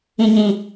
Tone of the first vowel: low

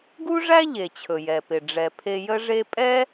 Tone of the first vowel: high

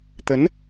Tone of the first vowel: rising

